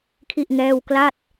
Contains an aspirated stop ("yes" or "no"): yes